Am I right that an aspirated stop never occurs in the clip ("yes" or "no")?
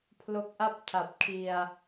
no